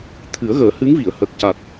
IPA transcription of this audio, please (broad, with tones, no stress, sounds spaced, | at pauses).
t̪ʰ ɨ˨˩˦ ə̯ ɣ əː˨˩˦ h ɨ˧˥ ŋ v i˨˩˨ ə̯ h ə˨˩ k̚ c a˨˩ t̚